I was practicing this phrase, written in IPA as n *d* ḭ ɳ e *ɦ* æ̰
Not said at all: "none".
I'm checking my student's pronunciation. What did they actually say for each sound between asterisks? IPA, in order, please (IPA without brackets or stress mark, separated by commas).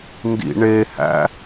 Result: d, h